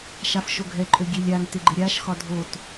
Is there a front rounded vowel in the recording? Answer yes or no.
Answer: yes